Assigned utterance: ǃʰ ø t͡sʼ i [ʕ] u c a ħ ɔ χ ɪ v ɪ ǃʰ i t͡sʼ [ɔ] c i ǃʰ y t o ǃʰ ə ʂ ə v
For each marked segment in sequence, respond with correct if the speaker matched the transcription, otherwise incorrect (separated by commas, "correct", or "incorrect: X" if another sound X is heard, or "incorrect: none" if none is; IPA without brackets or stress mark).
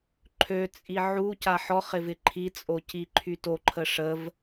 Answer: correct, incorrect: o